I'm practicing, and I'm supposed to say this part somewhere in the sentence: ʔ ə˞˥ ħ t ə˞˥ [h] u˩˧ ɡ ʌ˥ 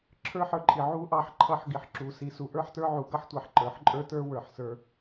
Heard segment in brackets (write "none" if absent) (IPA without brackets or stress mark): ʕ